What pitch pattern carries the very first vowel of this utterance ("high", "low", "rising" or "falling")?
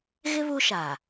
high